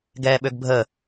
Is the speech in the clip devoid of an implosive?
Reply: no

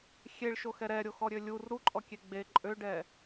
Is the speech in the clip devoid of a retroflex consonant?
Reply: no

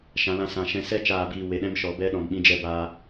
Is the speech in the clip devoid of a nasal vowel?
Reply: no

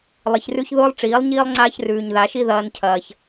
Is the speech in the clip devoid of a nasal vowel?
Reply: yes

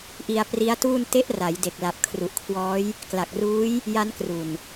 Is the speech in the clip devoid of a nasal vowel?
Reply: yes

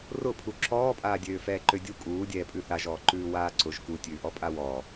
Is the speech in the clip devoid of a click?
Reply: no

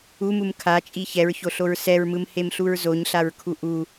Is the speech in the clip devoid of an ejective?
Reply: no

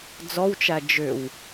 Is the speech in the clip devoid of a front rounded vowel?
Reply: no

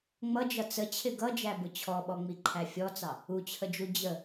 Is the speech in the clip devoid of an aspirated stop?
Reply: no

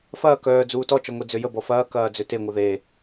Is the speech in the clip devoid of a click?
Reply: yes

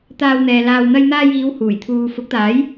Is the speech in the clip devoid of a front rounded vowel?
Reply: yes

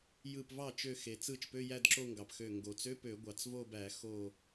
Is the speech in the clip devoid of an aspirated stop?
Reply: yes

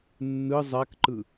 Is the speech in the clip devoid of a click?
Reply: no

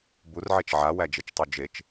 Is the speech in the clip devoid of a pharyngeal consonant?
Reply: no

